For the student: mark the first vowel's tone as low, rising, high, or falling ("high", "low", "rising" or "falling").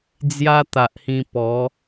high